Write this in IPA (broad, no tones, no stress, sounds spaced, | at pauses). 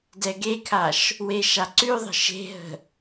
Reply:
d ɛ ɡ e kʰ a ʃ | w e ʃ a ǀ ʉ ðˤ ə̤ ʃ e̤ ɦ ə̤